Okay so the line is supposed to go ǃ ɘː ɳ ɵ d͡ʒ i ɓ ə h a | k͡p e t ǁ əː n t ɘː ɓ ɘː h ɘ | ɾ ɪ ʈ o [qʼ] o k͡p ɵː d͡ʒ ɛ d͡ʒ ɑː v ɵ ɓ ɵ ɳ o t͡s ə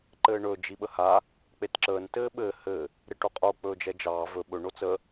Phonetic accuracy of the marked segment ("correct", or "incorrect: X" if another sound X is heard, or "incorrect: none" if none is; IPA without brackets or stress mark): correct